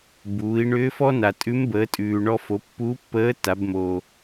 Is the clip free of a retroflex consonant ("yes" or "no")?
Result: no